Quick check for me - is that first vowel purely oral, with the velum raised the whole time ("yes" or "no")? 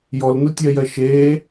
yes